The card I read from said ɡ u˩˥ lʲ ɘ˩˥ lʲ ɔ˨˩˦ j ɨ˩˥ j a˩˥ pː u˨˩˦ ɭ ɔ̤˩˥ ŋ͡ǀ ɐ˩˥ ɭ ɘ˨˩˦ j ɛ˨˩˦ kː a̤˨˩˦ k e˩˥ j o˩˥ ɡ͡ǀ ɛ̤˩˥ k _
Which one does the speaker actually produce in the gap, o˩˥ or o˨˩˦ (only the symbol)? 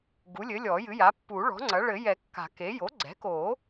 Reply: o˨˩˦